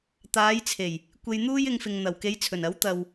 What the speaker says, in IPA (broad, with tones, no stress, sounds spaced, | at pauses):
t̪ aː˨˧ j t͡sʰ e˨˩ j | kʷ e˧ j n̪ uː˥ j ɪ˧ ŋ f ɪ˨ ŋ n̪ ɐ˨˩ w k e˨˧ j t͡sʰ ɵ˨˩ n ɐ˨˥ w t̪ ɐ˨ w